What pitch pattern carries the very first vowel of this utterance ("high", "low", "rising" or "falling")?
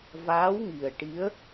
rising